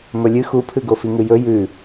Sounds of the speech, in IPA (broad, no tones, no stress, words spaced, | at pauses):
mɵlʲɨ xupʰɨ ɡofiŋɨjɵ jʉ